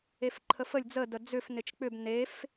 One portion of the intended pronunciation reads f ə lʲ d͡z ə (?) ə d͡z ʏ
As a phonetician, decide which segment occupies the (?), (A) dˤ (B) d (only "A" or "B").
B